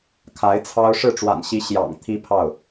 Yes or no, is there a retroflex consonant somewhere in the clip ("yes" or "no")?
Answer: yes